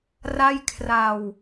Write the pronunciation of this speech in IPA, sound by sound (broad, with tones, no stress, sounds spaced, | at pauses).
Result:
r a˥˩ j kʰ r a˧ w